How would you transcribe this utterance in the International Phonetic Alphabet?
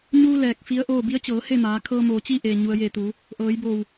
ɲuː˧ lɛː˧˩k̚fi˧˥ə̯ʔoː˥˨ bi˧˥ə̯t͡ɕɤː˩˧he˥˨maː˩˧ kʰɤː˧moː˩t͡ɕi˥˨ ʔeː˩ɲu˩ə̯je˧˩t̪uː˩˧ | ʔɤː˩˧jboː˧˩w

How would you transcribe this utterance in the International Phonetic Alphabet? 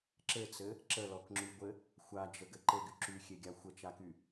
ǁɘt͡sɘ | ǁəlɔkŋ͡ǁyɡʷɘ | xʷad͡ʒəɡɘ ǃɘɡy ǁyxʲeɡʲa xʷət͡ʃaky

